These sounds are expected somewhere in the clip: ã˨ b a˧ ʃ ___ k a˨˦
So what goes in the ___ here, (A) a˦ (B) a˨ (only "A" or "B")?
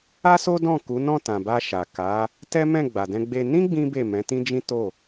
B